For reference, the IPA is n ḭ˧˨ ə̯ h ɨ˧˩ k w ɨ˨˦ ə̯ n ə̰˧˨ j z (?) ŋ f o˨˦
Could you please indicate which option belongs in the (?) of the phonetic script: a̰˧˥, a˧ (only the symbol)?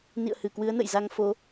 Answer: a˧